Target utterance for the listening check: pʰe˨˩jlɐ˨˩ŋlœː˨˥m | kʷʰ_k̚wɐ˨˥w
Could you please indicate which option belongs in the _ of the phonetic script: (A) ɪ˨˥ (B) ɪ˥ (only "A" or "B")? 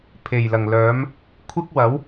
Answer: B